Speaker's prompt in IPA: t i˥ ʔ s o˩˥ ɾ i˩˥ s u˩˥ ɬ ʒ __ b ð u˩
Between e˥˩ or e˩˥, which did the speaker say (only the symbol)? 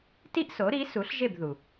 e˥˩